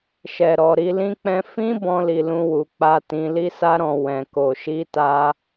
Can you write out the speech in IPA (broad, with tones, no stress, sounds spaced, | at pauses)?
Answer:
ʃ ɛ˨ ɾ ɔ˨ ɾ i˧ l ĩ˧ k͡p ɛ̃˧ f ĩ˦ b ɔ̃˧ l i˨ l ũ˧ w u˨ k͡p a˧ t ĩ˧ l i˧ s a˧ ɾ ɔ̃˨ w ɛ̃˨ k o˨ ʃ i˧ t a˧